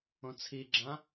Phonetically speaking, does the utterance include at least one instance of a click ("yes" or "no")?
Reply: yes